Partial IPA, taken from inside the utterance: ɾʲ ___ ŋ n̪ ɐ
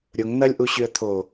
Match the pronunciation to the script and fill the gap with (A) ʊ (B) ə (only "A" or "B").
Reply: A